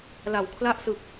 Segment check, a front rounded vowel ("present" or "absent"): absent